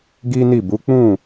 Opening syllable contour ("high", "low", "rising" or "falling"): high